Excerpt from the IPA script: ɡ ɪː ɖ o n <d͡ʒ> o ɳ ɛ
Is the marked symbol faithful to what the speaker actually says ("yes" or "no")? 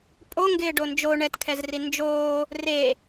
yes